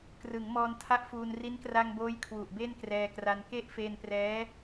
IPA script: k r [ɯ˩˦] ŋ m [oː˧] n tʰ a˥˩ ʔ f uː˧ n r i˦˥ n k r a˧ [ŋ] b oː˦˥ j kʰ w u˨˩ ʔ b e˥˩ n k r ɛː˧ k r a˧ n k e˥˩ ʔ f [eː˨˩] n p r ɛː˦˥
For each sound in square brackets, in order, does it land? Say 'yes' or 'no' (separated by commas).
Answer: yes, no, yes, no